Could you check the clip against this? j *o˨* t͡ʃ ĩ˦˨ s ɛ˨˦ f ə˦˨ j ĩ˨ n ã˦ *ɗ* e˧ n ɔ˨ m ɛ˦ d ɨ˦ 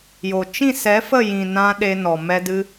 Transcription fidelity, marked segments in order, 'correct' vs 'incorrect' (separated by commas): correct, correct